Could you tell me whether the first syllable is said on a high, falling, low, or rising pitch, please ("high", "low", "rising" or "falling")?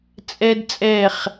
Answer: high